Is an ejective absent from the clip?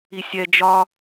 yes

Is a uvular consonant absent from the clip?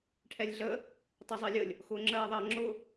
yes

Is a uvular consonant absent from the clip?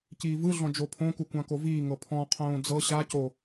no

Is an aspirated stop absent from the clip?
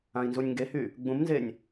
yes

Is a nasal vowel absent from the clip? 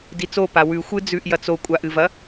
yes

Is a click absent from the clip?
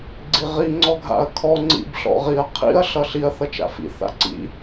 no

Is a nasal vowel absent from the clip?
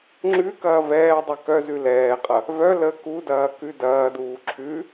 yes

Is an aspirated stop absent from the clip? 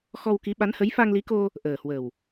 yes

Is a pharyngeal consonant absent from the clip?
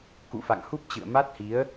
yes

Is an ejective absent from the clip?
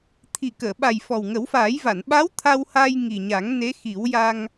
yes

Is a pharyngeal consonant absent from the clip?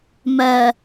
yes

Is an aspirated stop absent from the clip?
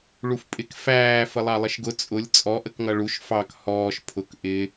no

